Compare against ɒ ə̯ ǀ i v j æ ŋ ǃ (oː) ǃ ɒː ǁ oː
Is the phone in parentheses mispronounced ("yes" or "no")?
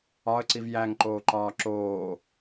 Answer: no